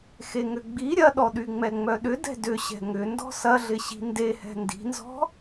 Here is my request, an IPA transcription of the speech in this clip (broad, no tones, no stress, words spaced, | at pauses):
xeŋʏɡ͡bi ɾʲɐɗɔ ɗyŋ͡mɛŋ͡mœɗʏ dɛ̤dʏɕɛ̤ ŋʏndɔ̤ sɐɮɪɕi̤ ndehɛ̤ ndi̤nzɔ̤